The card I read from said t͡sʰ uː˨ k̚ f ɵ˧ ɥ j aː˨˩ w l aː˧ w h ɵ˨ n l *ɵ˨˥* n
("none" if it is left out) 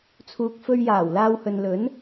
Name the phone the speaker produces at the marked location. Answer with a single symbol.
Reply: ɵ˨˥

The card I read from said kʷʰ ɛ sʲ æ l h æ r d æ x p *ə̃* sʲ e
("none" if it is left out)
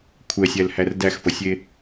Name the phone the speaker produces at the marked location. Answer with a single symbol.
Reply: ə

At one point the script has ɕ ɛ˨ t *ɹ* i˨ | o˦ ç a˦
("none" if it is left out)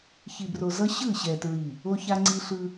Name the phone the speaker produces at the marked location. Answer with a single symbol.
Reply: ɹ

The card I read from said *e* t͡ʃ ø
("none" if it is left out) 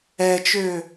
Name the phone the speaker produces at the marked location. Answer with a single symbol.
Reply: ɛ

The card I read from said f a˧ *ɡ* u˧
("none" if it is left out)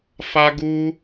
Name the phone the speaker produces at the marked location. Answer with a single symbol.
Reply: ɡ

